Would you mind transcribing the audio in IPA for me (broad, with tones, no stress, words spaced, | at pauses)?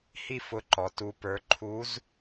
hi˥fʊ˧˥ǃɔ˩˧ tu˧pə˞˧˥ ǃʰu˧˥z